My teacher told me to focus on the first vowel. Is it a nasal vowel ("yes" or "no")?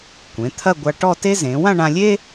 yes